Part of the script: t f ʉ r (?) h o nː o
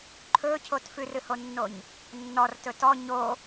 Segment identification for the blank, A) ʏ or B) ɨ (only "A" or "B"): B